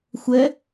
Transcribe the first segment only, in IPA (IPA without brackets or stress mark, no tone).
xʷ